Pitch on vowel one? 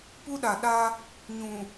high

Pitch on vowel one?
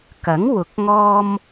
rising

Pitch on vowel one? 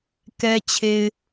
low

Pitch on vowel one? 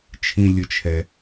high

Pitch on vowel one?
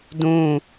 falling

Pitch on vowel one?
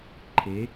rising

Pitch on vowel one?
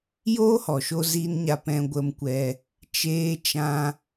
high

